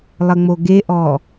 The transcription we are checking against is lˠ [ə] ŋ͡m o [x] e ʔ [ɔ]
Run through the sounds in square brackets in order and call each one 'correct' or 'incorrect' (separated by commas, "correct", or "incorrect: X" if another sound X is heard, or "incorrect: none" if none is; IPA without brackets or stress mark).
correct, incorrect: ɡ, correct